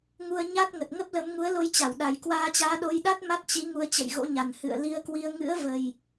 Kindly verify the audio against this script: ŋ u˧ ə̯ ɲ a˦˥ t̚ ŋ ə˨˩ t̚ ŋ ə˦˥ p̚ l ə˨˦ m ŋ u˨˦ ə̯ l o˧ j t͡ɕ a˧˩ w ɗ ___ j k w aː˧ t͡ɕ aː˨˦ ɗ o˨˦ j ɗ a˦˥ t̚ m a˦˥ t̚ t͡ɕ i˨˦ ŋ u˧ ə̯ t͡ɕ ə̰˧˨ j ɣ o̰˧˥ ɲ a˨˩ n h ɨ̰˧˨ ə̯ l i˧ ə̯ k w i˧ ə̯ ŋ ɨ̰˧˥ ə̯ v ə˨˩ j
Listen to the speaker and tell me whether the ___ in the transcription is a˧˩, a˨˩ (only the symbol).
a˨˩